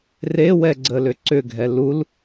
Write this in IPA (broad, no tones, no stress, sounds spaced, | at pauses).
r e w ɛ ɡ͡ǀ ə l ʏ ǀ ʏ ɡʱ ɛ l u l